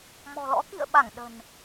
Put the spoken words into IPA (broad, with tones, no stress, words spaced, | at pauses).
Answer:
mɔ̤˨˩lɔ̰˧˥ kḭ˧˨ə̯ ɓa˧˩ŋ ɗə̤˨˩n